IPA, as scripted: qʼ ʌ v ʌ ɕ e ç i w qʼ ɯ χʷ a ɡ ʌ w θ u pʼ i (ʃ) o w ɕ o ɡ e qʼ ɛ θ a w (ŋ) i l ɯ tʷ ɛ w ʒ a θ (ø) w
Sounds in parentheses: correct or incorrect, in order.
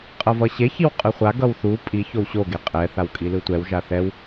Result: incorrect, incorrect, incorrect

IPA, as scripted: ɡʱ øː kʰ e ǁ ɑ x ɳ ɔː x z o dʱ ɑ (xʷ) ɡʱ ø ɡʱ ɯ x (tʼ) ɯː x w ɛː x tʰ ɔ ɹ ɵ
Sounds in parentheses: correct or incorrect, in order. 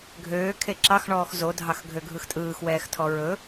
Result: incorrect, correct

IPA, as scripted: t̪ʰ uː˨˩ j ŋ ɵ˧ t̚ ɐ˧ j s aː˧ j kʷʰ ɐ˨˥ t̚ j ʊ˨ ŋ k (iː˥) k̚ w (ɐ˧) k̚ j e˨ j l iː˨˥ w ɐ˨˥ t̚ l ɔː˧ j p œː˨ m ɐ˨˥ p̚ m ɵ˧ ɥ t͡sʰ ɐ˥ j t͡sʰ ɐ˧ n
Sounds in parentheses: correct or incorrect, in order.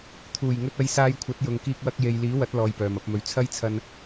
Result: incorrect, correct

